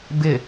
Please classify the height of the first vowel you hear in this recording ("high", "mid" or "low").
high